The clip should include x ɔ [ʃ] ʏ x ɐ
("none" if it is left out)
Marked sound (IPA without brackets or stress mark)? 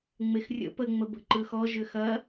ʒ